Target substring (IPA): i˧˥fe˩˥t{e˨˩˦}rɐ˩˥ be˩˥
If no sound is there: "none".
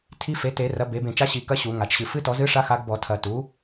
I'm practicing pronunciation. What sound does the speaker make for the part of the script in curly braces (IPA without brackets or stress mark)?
e˨˩˦